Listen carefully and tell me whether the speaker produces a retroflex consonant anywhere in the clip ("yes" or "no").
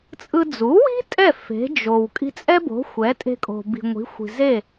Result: no